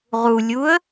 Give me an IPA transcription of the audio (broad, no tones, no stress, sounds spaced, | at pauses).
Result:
ʁ u lʲ u ə̯